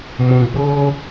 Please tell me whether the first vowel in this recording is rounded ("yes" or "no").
yes